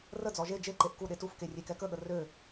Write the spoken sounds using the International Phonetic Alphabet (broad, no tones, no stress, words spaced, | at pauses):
rəd͡zɔ ʒe d͡ʒeǃeʔ kuɗe tufke rʲekɛkəɠə rø